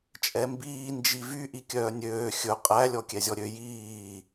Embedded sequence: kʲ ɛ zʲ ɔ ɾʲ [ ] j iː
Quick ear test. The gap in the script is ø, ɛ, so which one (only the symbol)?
ø